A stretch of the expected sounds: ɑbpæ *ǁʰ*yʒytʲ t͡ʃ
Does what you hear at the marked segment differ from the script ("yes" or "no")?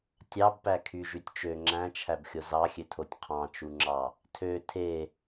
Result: yes